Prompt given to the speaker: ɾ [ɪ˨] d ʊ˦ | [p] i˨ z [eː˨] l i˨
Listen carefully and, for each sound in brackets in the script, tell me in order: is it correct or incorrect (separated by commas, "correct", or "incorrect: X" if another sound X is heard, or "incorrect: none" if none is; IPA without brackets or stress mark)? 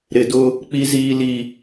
correct, incorrect: k͡p, incorrect: iː˨